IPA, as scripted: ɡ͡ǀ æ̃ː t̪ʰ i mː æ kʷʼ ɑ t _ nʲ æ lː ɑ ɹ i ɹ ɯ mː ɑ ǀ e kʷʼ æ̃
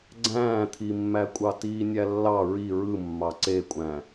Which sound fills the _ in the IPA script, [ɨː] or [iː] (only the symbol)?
iː